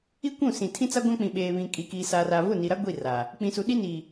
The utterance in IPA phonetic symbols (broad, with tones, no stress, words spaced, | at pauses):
i˦kʷũ˦˨sĩ˨ tʰĩ˦t͡sa˦ɡʷã˦k͡pĩ˨ ɓeː˨βĩ˨kʼi˨ kiː˨saː˨raː˨ vʊ˦˨ni˨ɾa˦ ɡʷi˦˨ra˨ | k͡pĩ˨su˨ɗi˦ ni˨